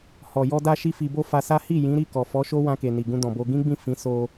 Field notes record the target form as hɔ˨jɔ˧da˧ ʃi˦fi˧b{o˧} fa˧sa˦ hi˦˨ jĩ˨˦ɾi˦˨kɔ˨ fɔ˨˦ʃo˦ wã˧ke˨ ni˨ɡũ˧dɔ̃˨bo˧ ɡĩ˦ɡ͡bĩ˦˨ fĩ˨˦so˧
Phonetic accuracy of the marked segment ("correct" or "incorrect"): incorrect